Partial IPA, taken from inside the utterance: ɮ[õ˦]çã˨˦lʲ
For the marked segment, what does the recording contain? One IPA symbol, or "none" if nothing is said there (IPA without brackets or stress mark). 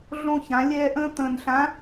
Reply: õ˦